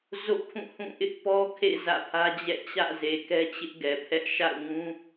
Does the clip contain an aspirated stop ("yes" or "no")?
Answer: yes